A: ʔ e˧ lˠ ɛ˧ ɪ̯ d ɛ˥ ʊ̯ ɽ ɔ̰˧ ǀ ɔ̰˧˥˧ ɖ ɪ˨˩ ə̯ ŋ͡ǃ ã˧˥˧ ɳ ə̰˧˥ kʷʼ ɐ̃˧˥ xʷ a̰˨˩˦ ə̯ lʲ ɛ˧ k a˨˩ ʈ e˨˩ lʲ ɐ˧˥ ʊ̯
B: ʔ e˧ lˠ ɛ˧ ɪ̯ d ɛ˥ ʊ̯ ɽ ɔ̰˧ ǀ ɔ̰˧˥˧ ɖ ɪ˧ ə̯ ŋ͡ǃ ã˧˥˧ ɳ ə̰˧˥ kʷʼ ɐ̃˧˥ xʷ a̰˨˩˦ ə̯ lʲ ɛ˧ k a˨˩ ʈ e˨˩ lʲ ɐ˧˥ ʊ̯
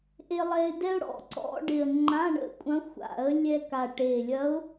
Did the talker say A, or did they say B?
A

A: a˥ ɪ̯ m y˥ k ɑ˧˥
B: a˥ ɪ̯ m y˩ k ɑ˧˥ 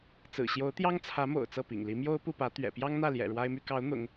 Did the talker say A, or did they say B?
A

